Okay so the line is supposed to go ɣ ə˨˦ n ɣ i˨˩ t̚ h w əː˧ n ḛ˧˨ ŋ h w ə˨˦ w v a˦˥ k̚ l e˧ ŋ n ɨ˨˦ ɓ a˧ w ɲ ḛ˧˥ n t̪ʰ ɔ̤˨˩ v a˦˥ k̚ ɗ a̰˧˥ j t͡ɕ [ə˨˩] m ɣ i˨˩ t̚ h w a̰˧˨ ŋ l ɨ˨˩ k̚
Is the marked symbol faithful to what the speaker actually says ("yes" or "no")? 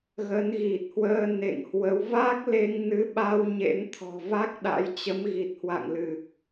no